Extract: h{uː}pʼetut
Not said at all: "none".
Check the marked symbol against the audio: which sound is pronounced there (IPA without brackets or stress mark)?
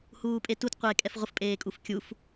uː